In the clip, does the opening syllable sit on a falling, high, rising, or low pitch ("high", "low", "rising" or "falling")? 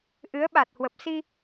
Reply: rising